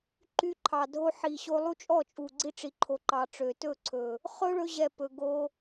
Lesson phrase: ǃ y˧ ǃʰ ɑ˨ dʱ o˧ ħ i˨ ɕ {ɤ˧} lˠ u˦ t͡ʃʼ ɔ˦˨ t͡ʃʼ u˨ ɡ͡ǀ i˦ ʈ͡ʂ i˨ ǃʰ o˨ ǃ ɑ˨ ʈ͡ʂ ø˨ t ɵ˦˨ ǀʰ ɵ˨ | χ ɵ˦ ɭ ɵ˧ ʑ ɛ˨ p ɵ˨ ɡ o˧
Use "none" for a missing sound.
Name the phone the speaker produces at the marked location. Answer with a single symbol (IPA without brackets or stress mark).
o˧